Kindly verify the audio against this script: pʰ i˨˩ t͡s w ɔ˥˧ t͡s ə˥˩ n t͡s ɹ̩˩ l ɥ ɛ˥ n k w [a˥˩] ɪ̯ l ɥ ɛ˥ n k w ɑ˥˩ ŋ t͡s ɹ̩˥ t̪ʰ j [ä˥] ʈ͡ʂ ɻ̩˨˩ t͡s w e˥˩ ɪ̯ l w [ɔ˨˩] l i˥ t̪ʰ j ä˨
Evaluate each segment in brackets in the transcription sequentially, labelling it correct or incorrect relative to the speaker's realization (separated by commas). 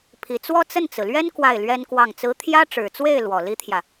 correct, correct, correct